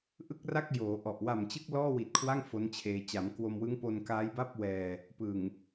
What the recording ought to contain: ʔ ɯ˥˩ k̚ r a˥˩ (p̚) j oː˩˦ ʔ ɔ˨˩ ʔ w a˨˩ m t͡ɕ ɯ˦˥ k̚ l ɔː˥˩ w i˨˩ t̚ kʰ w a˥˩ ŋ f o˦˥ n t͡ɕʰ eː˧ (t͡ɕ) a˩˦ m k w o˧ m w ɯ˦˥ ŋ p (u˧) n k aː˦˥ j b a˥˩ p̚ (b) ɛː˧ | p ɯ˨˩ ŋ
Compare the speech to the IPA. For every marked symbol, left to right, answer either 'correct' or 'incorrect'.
incorrect, correct, incorrect, incorrect

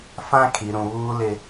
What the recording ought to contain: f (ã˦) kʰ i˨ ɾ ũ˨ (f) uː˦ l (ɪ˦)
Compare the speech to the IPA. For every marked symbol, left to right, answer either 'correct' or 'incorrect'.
correct, incorrect, correct

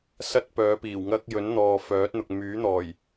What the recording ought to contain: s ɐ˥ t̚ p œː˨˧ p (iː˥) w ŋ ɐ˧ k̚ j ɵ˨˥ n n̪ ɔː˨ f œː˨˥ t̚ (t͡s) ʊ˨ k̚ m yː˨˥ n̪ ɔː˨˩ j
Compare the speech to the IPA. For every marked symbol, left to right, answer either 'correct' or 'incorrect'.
incorrect, incorrect

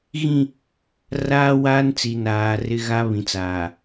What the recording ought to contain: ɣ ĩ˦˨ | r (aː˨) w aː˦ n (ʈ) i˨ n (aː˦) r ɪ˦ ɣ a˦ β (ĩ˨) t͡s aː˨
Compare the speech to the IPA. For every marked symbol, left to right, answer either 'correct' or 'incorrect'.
incorrect, incorrect, incorrect, correct

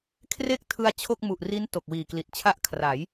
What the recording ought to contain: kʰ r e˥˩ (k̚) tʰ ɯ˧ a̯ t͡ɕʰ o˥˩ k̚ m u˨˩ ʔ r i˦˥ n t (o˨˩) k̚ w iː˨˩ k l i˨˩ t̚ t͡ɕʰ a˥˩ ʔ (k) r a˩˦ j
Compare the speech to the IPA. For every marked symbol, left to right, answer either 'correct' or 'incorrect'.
correct, correct, incorrect

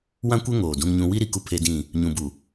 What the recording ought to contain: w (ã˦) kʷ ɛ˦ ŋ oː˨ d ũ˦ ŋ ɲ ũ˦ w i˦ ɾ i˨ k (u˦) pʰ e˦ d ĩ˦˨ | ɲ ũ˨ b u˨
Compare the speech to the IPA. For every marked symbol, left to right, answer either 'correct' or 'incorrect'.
correct, correct

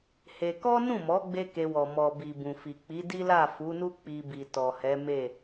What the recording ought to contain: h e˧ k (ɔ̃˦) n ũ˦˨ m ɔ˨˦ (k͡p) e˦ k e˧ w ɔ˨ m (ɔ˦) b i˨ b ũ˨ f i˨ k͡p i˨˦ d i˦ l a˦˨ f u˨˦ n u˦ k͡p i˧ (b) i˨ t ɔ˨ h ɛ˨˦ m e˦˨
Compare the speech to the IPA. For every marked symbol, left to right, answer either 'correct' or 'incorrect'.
incorrect, incorrect, incorrect, correct

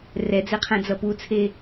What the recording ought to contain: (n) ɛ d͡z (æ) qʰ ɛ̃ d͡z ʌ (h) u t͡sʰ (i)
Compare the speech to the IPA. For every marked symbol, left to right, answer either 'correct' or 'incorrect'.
incorrect, incorrect, incorrect, incorrect

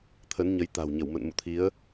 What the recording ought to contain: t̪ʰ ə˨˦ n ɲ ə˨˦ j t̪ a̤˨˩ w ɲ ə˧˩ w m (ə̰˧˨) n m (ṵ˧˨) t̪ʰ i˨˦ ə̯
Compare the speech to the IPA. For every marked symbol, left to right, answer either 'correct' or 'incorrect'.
correct, correct

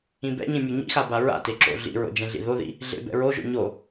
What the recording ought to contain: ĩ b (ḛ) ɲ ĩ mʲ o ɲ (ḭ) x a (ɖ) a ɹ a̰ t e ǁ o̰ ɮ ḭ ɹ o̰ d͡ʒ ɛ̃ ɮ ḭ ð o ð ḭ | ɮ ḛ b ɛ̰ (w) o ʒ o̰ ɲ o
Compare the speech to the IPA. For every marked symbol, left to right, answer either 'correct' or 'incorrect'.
incorrect, correct, incorrect, incorrect

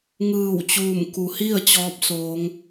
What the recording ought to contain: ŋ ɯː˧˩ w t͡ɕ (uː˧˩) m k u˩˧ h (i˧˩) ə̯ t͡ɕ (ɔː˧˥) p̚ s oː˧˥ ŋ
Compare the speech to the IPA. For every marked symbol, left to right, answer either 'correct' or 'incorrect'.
correct, incorrect, correct

